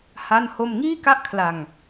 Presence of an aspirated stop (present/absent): present